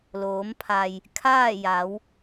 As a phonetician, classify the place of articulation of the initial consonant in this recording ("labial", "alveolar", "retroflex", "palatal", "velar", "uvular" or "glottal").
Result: alveolar